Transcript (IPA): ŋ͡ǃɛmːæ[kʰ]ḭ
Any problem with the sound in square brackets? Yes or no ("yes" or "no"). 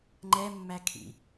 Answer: no